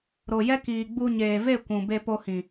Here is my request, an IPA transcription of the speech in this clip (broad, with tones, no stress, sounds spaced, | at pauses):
ɾ o˨ j ɛ˦ k iː˨ ɡ͡b u˧ ɲ eː˨ v e˦˨ kʷ ũ˨ b e˧ p o˧ h ĩ˨